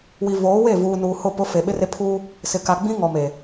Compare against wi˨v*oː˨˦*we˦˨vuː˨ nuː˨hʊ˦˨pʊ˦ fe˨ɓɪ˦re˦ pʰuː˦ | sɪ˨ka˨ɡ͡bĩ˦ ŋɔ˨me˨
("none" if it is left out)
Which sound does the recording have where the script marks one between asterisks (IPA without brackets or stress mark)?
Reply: oː˨˦